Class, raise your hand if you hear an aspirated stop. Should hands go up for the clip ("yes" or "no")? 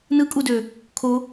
yes